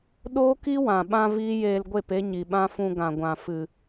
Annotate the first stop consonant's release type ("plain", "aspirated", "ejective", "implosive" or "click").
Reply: implosive